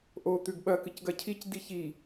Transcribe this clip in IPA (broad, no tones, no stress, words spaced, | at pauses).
ʔo t̪ʉɡɓɐ kɨcɡɐcʰic diçi